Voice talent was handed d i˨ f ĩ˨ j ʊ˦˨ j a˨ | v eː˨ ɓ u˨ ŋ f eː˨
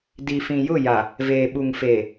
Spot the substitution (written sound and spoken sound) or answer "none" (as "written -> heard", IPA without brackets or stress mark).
none